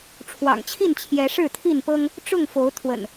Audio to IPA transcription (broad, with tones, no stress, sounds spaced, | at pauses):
ʈ͡ʂʰ w ɑ̰˨˩ ŋ t͡ɕʰ i˥˨ n t͡ɕʰ j ɛ˨˦ ʂ ɻ̩˥˨ t̪ʰ i˥˨ n p ɤ˦ ŋ | ʈ͡ʂ ʊ˥˨ ŋ f o˨˦ ʊ̯ t̪ʰ w ə̰˨˩ n